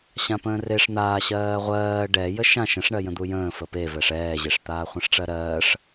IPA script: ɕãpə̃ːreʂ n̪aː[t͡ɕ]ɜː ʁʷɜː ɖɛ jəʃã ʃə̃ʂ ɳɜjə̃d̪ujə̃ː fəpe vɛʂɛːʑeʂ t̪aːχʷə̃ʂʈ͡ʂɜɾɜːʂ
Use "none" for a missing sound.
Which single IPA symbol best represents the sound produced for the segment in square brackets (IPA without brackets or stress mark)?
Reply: ɕ